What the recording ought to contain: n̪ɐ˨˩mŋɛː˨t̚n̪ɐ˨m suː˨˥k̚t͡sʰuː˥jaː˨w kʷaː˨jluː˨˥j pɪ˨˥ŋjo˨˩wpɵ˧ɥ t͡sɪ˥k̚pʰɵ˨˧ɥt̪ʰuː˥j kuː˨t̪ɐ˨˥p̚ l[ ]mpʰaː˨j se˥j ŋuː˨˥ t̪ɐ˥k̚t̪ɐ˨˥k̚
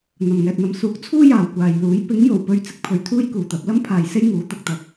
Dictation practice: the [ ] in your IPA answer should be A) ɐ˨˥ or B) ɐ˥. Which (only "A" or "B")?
B